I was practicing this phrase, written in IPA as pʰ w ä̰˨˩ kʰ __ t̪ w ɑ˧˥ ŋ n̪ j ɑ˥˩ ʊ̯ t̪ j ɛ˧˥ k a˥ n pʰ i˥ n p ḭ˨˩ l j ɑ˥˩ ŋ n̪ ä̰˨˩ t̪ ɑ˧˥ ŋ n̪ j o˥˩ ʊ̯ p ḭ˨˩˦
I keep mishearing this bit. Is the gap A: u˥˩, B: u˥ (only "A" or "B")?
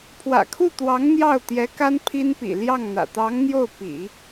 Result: A